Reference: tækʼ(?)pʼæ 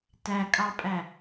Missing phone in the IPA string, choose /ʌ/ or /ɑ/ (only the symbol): ɑ